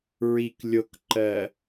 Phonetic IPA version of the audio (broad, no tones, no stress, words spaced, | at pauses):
ɹik lʲokǃɜ